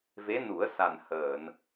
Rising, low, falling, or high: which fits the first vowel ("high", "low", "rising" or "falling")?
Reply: rising